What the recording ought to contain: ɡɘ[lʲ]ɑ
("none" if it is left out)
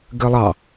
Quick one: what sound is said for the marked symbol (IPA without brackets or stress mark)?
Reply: lˠ